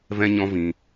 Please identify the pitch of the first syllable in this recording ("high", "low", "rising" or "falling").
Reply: high